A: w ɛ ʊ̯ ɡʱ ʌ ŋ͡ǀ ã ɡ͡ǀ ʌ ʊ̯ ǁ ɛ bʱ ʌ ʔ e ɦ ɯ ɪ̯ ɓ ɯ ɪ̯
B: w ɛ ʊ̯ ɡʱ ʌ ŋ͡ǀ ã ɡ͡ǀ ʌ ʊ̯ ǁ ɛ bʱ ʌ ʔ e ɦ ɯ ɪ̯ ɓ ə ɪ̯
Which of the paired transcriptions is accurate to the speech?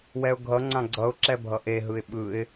A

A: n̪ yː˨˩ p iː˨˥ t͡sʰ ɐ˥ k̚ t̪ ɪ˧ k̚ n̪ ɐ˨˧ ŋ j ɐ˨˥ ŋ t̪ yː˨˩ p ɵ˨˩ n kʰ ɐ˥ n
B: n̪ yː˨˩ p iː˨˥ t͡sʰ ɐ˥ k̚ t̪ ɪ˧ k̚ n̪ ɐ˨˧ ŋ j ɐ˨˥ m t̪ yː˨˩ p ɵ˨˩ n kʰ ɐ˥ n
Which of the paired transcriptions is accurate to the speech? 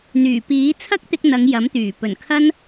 B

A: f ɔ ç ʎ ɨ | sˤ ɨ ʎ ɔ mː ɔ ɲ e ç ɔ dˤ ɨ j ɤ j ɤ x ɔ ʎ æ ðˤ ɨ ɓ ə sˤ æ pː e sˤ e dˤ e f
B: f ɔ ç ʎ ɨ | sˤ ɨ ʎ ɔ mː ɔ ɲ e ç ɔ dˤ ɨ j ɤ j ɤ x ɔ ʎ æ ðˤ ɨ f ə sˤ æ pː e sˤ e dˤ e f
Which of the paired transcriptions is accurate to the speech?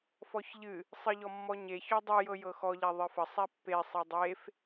B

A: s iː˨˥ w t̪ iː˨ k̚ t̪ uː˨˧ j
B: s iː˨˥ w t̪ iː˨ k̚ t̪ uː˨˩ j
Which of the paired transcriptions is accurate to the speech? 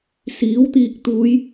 A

